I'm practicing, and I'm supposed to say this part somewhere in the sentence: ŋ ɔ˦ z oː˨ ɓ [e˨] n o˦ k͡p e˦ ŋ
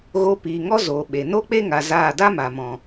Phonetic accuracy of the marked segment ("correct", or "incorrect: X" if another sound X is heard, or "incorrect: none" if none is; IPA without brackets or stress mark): correct